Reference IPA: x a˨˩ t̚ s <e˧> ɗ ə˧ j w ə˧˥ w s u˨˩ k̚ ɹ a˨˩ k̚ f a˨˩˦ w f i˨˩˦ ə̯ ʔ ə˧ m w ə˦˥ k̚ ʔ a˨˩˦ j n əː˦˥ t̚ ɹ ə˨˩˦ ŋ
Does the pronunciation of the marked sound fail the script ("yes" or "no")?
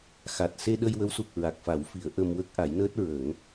no